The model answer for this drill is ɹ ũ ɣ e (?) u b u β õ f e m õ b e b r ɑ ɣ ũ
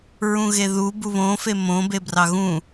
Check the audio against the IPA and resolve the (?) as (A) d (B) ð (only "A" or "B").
B